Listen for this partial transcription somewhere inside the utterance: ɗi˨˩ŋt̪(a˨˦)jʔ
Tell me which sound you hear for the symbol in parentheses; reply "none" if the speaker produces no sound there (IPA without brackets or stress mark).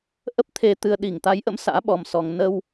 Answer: a˨˦